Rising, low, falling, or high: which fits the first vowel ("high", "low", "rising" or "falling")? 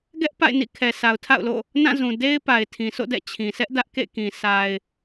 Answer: high